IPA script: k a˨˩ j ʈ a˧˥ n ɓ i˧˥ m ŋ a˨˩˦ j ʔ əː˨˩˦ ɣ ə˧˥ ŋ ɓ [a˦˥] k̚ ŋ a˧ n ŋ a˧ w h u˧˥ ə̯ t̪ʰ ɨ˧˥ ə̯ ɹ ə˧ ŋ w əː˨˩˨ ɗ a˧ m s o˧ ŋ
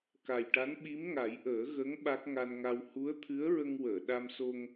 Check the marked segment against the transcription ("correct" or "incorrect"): correct